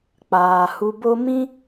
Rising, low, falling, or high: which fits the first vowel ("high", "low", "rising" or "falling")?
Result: low